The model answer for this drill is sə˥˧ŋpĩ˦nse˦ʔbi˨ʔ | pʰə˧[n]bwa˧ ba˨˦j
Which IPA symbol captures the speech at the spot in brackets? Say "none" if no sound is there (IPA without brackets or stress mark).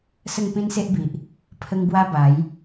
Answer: ŋ